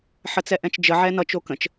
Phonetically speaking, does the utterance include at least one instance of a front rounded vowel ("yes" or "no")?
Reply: no